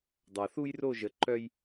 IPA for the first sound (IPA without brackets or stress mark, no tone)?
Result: dˤ